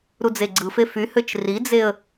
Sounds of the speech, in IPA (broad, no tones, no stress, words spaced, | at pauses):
ɾud͡zeɡ͡ǀɯfe fyhøt͡ʃ rid͡zeə̯